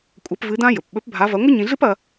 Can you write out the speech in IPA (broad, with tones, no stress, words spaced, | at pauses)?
kʷʼɐ˧˥pvɨ˧˥dã˥ jɵ˩pɓɵ˧˥p bʱa˧˥vɐ˧˥ ŋʷɨ˥ɲĩ˧ɮɨ˥pɐ˧